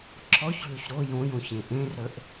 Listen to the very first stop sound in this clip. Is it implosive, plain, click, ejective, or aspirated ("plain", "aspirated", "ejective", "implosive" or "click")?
click